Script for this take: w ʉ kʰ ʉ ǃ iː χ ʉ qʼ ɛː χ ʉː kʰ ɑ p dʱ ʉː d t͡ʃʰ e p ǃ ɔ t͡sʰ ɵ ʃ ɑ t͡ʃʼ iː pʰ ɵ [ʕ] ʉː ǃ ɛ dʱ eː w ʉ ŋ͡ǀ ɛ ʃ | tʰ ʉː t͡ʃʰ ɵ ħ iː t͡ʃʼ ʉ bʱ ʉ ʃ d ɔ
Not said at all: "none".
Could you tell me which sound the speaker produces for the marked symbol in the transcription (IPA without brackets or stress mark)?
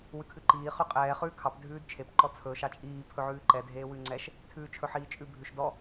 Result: ʕ